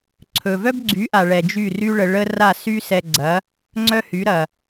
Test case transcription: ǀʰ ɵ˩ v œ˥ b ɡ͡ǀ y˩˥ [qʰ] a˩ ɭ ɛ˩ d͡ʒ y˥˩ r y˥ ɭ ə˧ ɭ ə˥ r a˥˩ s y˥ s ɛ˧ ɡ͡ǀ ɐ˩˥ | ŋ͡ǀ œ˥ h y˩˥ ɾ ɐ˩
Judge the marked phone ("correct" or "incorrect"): incorrect